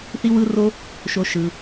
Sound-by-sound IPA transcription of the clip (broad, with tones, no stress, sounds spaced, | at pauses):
θ i˦ w ɯ˦ r o˦ | ʃ o˧ ʃ ɯ˧